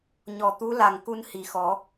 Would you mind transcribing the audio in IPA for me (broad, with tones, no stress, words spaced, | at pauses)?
ɲɔ˨˩t̪u˧˥ la˨˩ŋ ku˧nhi˨˩˦xɔ˨˩˦